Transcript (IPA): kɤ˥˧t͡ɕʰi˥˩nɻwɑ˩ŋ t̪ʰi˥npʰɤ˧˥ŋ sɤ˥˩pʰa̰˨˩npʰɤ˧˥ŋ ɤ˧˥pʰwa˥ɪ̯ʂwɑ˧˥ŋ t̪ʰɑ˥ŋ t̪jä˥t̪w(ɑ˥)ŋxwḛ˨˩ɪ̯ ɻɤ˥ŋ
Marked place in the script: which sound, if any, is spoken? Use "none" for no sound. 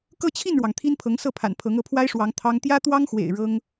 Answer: ɑ˥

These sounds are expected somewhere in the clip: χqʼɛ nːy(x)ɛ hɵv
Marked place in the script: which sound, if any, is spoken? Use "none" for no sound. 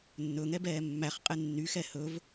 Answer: x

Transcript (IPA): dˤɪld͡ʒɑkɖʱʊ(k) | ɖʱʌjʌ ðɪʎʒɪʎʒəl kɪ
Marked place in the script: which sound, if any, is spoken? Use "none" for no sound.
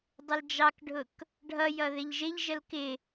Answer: k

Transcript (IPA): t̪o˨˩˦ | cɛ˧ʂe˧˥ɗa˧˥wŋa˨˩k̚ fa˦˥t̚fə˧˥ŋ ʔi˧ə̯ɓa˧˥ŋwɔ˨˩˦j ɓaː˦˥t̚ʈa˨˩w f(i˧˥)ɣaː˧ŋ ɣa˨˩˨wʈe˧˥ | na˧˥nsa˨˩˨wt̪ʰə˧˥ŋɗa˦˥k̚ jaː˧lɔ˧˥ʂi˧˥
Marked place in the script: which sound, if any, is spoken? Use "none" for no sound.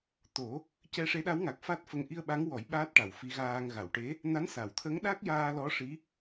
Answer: i˧˥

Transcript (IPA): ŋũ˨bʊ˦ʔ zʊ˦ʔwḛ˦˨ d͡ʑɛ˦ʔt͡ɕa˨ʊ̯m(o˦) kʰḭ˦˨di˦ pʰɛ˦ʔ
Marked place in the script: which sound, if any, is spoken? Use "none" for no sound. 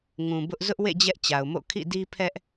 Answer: o̰˦˨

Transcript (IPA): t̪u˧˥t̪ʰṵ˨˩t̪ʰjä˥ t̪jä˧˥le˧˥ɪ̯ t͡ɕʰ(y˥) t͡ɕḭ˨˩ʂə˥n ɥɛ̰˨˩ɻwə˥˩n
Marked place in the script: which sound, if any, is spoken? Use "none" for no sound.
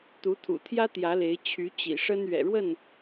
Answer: y˧˥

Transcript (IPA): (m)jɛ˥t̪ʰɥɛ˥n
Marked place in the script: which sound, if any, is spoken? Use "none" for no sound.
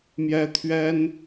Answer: m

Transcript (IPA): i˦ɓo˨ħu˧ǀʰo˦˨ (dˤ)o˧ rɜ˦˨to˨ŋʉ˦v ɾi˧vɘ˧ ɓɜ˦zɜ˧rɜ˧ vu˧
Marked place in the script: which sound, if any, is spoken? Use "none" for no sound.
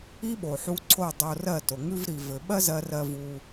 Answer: dˤ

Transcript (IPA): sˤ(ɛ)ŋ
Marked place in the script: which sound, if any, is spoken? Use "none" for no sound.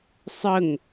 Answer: ə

